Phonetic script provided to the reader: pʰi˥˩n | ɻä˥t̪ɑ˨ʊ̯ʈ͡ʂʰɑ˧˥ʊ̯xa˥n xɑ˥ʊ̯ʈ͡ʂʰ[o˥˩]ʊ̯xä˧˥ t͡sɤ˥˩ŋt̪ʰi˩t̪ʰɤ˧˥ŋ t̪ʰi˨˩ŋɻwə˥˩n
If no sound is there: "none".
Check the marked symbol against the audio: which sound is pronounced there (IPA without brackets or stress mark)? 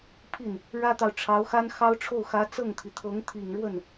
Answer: o˥˩